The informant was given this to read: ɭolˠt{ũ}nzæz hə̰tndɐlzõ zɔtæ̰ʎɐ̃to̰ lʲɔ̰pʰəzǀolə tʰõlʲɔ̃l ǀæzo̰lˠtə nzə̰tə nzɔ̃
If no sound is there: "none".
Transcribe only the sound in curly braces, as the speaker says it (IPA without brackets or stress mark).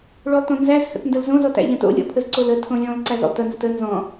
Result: õ